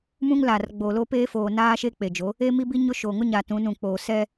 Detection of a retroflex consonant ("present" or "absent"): absent